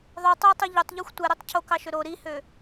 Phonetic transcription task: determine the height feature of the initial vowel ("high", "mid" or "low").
mid